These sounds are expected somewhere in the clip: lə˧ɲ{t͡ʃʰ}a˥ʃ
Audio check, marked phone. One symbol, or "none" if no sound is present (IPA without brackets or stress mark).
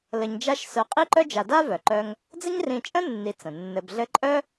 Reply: d͡ʒ